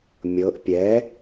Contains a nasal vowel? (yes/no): no